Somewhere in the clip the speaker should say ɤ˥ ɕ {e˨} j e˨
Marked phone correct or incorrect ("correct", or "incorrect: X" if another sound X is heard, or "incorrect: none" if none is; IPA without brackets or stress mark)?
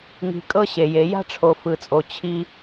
incorrect: e˩